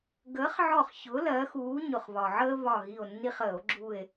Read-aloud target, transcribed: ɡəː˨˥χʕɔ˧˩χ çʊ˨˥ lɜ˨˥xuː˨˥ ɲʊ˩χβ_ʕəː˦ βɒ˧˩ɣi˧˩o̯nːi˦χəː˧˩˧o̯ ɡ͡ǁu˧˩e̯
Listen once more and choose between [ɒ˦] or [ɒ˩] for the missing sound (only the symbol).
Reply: ɒ˩